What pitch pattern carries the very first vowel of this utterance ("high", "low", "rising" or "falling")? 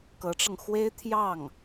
rising